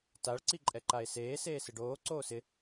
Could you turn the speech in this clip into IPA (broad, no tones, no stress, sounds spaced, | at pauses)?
t a ɭ ǀ i ǃʼ ɛ ǃ a e̯ s eː s eː s ɪ ɖ oː ǀ oː s ɪ